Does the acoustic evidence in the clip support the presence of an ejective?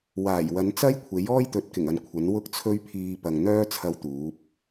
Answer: no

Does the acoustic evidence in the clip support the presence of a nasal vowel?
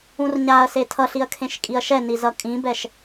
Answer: yes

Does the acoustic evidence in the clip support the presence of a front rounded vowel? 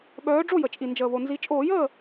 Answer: yes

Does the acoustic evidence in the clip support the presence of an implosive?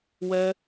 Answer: no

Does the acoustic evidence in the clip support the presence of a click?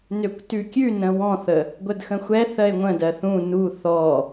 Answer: no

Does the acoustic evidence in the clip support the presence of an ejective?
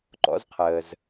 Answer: no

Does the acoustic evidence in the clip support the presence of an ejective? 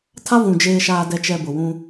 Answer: no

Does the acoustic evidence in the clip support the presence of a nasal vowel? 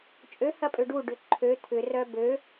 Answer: no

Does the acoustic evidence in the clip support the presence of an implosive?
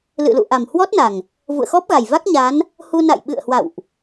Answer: yes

